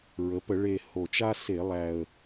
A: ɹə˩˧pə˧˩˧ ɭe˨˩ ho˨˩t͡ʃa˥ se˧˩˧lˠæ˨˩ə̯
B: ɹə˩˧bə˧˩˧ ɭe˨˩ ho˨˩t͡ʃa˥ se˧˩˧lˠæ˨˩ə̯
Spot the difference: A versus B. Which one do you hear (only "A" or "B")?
A